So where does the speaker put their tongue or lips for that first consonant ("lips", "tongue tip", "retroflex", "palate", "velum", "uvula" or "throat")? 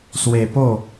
tongue tip